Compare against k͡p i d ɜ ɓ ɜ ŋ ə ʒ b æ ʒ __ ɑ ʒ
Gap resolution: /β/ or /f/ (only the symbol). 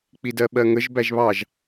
β